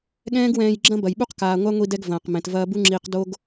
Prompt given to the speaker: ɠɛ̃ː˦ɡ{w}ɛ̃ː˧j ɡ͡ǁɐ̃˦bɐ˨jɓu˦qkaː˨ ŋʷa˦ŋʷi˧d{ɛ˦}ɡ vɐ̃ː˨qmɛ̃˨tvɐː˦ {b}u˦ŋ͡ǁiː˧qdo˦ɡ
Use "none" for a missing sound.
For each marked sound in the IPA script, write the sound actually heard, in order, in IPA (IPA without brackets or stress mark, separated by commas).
w, ɛ˧, b